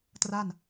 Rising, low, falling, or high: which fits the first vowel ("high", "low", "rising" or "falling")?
falling